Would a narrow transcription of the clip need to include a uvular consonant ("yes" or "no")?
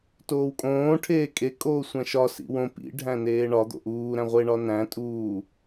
yes